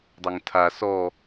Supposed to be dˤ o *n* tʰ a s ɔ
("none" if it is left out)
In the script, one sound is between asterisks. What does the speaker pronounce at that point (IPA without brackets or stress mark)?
ŋ